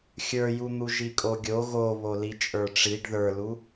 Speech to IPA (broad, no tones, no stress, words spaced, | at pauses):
xʲə˞jun̪u ʒikʼoɡʲo ɣo βolit͡ʃʼə˞ʈ͡ʂiɖ ðə˞lu